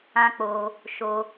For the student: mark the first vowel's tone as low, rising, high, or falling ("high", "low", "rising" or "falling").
high